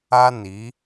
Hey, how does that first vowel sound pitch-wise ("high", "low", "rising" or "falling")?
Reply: high